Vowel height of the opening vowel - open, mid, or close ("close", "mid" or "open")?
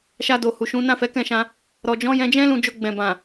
open